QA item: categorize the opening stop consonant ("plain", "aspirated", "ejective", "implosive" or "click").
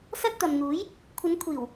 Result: plain